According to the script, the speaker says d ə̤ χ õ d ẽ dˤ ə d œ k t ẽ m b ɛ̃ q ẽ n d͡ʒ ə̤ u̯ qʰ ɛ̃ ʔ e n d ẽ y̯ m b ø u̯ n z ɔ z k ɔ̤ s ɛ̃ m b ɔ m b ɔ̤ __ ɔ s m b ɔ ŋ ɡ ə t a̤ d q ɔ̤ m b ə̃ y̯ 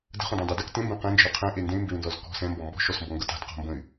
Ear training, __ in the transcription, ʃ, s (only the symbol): ʃ